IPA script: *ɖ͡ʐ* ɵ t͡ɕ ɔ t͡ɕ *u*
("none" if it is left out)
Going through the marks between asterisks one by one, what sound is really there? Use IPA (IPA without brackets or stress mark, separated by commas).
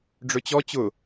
ɖ͡ʐ, ʊ